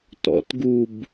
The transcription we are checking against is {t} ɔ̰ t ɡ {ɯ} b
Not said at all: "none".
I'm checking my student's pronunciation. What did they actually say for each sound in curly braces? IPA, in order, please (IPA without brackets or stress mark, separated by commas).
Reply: t, u